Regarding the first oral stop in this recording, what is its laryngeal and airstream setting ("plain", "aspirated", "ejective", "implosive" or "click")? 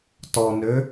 plain